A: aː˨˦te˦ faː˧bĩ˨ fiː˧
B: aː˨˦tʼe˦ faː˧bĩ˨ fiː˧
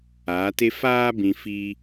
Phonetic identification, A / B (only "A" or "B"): A